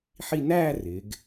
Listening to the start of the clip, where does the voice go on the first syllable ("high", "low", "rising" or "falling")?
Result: falling